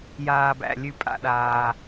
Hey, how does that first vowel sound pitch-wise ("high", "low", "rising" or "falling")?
low